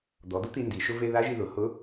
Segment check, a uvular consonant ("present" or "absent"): absent